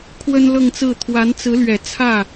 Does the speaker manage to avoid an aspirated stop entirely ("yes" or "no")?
no